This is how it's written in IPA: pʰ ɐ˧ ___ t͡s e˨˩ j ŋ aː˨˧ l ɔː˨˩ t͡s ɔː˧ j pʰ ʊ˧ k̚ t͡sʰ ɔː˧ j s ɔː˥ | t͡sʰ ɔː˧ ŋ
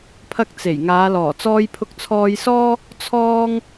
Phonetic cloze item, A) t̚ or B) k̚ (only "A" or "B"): B